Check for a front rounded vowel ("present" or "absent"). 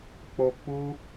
absent